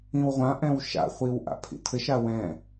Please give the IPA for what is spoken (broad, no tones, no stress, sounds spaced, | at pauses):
ĩ w ʁʷ ã ʔ ɛ̃ w ʃ a̰ χʷ i w ʔ a̰ pʰ ḭ tʰ ɘ ʃ a w ɛ̃